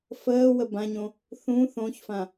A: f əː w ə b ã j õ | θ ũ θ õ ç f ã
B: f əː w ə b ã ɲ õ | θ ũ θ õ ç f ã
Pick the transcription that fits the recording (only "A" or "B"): B